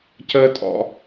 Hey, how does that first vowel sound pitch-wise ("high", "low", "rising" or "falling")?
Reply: high